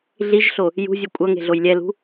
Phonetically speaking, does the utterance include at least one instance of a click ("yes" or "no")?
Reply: no